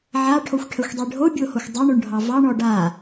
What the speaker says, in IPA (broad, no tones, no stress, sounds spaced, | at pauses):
ʕ a ʈʰ o xʷ ʈʰ ə xʷ dˤ e ɖʱ o bʲ o h o xʷ dˤ o ɳ o ɳ ɖʱ ɑ v ɑ ɳ ɔ ɖ a